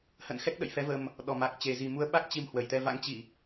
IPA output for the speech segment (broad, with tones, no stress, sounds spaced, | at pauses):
h ə̰˧˨ n x ɛ˦˥ k̚ ɗ ə̰˧˨ j f ɛ˨˦ v ə˧ m | ɗ ɔ˨˩ m a˨˩ k̚ t͡ɕ e˨˩ z i˨˩ m u˨˦ ə̯ ɓ a˦˥ k̚ t͡ɕ i˧ m h w ə˧˩ j t̪ ɛ˧ v a̰˧˥ ŋ t͡ɕ i˧˩˨